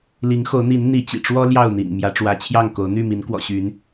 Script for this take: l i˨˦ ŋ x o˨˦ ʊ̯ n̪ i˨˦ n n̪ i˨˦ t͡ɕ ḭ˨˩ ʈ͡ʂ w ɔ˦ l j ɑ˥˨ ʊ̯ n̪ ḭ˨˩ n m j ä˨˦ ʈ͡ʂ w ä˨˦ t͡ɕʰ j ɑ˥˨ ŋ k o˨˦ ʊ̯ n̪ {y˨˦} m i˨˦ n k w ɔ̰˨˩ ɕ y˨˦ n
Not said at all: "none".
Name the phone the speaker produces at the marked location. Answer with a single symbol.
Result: y˥˨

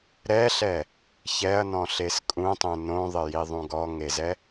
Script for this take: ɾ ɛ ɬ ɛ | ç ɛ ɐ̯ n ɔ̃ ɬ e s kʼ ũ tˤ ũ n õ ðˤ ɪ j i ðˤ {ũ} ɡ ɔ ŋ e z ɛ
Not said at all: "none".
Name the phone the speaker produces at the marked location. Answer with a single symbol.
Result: ũ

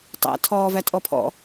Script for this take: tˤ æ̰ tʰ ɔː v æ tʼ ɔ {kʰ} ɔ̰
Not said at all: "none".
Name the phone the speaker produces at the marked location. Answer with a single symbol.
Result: pʰ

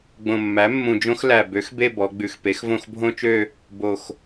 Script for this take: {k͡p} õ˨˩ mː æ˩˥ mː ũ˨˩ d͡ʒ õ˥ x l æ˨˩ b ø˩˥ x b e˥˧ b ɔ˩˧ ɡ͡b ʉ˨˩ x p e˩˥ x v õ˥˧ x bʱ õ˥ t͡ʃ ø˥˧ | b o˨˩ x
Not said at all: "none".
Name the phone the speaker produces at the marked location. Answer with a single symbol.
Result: ɡ͡b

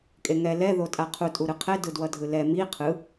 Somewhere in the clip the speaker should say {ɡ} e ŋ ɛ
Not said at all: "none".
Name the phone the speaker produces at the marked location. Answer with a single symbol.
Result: kʼ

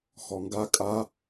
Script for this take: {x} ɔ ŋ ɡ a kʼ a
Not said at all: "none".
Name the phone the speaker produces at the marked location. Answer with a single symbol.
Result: x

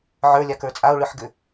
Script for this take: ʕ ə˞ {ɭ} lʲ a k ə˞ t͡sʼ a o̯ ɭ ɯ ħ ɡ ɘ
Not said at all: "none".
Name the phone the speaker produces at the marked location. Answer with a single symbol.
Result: none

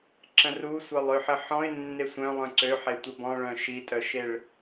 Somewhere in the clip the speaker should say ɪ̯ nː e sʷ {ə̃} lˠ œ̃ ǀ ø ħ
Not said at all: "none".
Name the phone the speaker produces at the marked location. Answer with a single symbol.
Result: œ̃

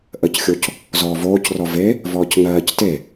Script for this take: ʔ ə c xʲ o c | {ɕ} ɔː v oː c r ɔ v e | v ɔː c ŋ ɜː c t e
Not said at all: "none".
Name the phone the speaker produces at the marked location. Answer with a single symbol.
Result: z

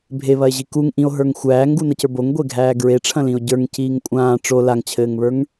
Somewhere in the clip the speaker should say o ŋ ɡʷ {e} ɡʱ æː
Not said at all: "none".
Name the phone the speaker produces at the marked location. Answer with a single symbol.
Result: e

